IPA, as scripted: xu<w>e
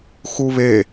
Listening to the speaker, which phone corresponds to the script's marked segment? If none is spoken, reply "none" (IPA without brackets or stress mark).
β